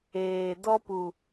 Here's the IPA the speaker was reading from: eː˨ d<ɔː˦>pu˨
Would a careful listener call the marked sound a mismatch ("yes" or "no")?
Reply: yes